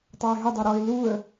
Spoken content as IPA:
tˤaɪ̯ɦɪdˤe ɾɔɪ̯ luə̯

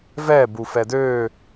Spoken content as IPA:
vɛ bufɛdø

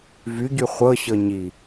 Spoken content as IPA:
vyɟy χʷɤɕɤ ɲi

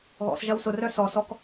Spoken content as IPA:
ɣɔ̰sʒɐw sʊrœ sɔsɔk

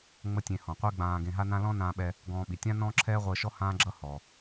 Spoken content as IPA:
ŋ͡mə˥tʲẽ˧ hɔ̃˩qʷe˥ ɡ͡bãː˧ɡẽ˧ɦa˥nã˥ lɔ̃˥nãː˧ɓɛ˧ | ɡɔ̃ː˧ɓi˩ tʲã˥ nɔ̃ː˥ǁʰɛː˥ʁʷəː˧ʃɔ˥ hãː˥ɡ͡ǁʌ˥hɔ˩

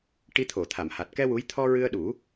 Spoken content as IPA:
ʈi˧t̪ʰo˨˩˨t̪ʰa˨˩˨m ha˨˩t̚kɛ˧ wu˧˥j t̪ʰɔ˧ɹɨ˧ə̯ɗu˨˩˦

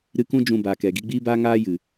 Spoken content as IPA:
ɾɨ˧kũ˦ d͡ʒũ˧baː˨kɛ˨ ɡi˧ɡ͡biː˦baː˦ŋaː˦ jɨ˨

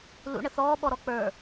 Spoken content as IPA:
lṵɳə θɔːɓɔɾɔ k͡pə˞

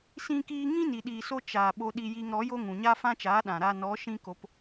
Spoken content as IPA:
sĩ˦kiː˦ ŋĩ˦ni˨ɗiː˨so˧ t͡ʃaː˨ ɓo˧ɗi˧ji˧ŋ ɾɔ˨˦jo˦ ŋũ˨ɲa˦fã˦t͡ʃaː˨˦ ɗã˨ ɾa˧nɔ˨˦ʃĩ˦ko˧p

